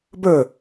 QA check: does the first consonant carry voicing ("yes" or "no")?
yes